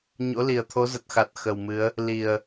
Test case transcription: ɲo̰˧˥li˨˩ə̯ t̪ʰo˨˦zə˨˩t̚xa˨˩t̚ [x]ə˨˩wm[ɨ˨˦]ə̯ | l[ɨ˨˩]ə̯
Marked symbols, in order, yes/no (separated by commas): yes, yes, no